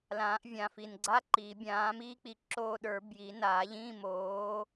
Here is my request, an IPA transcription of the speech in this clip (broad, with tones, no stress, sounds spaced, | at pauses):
l ãː˨˩˦ ʔ vʲ ãː˨˩ f i˨˩ n ɡ͡ǀ a˧˥˧ ǃ iː˨˩˦ bʲ ãː˨˥ m iː˥ k͡p i˨˥ ǁ oː˦˨ ɗ ə˞˨˩˦ b j i˨˩˦ n aː˨˩˦ ʎ ĩː˧˥˧ m oː˨˥